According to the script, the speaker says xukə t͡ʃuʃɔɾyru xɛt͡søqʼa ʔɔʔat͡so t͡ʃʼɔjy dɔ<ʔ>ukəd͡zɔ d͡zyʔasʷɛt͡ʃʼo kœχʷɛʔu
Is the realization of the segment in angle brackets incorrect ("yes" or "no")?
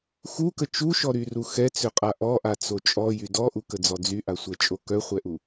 no